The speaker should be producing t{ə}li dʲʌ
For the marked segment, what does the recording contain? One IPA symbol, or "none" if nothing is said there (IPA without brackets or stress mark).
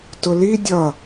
ʊ